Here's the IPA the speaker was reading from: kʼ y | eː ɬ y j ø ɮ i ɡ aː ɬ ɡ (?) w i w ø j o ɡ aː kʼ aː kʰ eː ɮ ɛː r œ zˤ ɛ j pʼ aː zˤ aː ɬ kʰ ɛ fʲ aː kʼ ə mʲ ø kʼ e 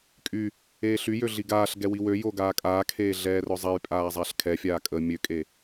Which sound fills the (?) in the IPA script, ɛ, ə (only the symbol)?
ɛ